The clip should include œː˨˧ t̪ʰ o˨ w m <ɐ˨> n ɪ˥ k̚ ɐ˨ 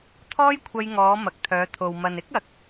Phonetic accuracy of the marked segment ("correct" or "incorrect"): correct